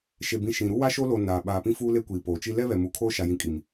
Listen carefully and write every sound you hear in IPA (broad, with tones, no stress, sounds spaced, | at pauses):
ʃ e˨ b ĩ˨ ʃ ĩ˨ ɾ u˦ w a˦ ʃ o˦ l o˨ n a˨ ɓ aː˨ p ĩ˦ f uː˦ l e˦ kʷ iː˨ p oː˨ t͡ʃ i˦ l ɛ˦ β ɛ˨ m u˨ kʰ oː˦ ʃ a˨ j ĩ˨˦ kʼ i˨ m